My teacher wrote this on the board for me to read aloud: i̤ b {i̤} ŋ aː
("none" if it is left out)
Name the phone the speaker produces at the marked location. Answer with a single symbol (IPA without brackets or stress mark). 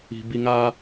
i